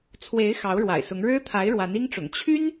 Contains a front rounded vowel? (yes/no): yes